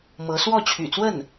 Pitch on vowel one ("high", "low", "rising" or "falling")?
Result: rising